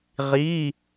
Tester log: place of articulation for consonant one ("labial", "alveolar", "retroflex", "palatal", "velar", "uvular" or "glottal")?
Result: uvular